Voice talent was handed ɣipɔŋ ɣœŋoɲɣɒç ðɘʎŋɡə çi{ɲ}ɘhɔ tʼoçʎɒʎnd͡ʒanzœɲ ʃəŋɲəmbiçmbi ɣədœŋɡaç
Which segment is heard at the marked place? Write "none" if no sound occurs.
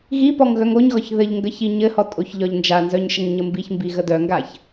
ɲ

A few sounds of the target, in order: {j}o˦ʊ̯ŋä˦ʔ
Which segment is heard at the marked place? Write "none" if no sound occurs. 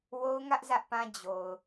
w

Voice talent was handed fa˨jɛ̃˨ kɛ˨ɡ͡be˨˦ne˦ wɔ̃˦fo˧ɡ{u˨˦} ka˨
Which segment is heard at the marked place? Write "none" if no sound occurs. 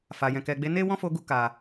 u˧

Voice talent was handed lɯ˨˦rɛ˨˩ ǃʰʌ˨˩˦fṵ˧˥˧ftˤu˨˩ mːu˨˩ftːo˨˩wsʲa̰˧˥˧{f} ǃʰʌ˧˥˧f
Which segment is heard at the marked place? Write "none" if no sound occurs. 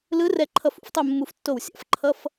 f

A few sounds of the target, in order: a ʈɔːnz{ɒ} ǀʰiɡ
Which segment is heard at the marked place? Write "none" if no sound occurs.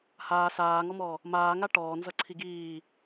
ʌ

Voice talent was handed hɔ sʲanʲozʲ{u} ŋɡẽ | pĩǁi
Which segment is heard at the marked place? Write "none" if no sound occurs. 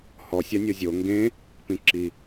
o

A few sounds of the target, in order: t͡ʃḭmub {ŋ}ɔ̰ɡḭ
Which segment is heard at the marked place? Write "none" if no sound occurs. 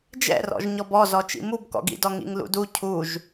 k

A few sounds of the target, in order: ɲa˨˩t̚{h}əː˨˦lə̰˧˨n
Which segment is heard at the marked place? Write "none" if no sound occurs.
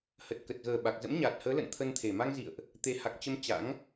h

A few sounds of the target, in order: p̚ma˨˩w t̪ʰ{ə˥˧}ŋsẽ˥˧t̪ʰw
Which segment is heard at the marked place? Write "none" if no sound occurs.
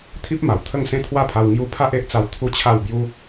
ə˥˧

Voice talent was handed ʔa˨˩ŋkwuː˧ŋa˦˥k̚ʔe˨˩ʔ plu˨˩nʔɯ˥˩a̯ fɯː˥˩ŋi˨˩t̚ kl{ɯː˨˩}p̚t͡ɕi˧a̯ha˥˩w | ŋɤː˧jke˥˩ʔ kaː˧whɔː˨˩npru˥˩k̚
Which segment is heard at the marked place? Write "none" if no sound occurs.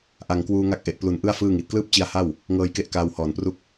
ɯː˥˩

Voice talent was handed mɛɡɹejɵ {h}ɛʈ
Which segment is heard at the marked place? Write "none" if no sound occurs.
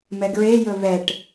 β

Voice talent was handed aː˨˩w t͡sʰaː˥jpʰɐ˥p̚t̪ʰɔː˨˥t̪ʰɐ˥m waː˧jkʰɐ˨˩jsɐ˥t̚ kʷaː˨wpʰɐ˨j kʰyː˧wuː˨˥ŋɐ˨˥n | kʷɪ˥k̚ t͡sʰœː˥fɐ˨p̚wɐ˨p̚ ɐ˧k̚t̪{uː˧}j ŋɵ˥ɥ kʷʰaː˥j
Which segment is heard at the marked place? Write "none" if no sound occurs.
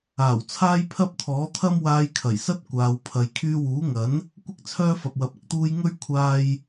uː˧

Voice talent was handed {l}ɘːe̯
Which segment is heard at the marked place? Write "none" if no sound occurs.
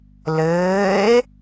l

